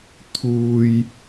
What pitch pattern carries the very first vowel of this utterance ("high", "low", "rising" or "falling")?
high